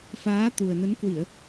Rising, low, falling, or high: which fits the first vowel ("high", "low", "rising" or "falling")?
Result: rising